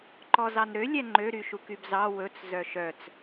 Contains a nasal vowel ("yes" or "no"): no